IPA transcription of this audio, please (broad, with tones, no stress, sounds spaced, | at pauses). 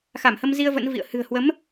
x a˧˩ m h ə˧ m z i˧ ə̯ v ə̰˧˥ n v ḭ˧˨ ə̯ h ɨ̤˨˩ ə̯ h w ə˨˦ m